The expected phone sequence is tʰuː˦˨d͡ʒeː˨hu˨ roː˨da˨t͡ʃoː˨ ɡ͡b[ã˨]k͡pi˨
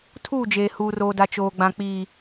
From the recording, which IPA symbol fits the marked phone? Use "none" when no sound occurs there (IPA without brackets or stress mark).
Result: ã˨